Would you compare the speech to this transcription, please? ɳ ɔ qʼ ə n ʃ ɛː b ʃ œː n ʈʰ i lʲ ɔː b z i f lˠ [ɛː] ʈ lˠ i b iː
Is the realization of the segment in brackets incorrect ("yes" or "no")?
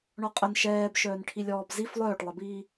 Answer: yes